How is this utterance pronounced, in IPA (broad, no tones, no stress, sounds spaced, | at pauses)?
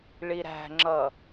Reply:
ɭ i ɾ æ̤ ŋ͡ǁ ʌ